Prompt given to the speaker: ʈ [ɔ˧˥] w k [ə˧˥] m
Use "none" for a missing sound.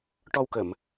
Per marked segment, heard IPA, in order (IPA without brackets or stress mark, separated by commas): ɔ˧, ə˨˩˨